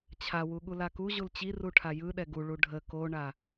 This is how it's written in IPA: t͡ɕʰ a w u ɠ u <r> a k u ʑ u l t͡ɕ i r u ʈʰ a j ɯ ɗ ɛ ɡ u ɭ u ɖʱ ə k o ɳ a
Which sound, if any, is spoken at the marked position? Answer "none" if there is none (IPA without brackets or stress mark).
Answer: l